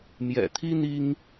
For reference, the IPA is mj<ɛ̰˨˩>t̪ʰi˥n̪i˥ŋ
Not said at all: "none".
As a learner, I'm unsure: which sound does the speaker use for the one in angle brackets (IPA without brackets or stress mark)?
ɛ̰˨˩